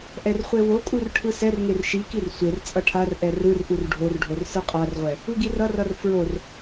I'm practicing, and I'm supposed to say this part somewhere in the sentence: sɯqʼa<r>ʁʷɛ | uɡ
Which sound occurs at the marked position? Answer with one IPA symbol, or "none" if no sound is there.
r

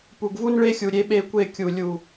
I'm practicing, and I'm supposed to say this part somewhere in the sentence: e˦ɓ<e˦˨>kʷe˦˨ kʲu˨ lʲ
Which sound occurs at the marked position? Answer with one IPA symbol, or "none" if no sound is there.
e˦˨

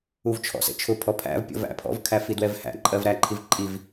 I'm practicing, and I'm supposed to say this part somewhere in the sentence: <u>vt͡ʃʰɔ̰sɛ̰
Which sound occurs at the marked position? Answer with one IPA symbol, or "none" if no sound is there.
u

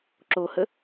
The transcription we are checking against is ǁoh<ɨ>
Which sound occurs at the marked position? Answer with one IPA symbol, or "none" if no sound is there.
ə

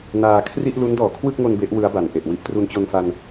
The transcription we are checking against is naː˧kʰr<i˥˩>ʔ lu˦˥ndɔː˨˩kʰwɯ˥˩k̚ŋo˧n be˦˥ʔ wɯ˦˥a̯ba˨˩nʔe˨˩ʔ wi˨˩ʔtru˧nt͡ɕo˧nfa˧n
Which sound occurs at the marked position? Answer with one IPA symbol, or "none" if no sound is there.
i˥˩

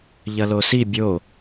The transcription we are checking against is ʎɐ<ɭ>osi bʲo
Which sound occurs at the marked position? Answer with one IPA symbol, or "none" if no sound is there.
l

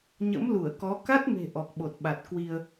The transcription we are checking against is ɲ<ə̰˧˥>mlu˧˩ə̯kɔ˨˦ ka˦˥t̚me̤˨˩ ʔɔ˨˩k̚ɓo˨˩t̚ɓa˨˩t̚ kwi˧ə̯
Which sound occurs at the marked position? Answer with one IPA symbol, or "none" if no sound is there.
ə̰˧˥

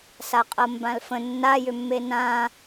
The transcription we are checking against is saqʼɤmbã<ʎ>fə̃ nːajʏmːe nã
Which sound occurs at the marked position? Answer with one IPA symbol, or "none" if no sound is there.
l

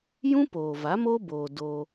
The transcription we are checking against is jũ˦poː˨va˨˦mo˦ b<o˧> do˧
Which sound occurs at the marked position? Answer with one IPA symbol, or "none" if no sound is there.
oː˧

